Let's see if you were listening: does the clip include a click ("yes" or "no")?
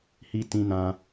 no